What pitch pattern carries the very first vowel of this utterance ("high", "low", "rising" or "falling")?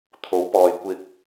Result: rising